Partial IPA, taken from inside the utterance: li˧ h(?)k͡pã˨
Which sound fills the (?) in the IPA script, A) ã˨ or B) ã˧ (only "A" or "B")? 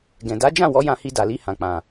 A